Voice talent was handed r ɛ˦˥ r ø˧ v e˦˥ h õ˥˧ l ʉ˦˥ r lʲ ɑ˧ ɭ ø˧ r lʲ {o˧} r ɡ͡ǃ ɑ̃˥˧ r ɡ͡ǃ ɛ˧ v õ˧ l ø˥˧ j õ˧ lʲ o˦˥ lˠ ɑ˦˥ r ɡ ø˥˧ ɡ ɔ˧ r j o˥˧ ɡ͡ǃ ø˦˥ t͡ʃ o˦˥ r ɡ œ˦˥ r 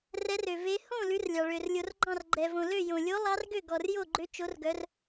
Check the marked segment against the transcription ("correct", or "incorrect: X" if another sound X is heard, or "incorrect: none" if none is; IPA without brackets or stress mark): correct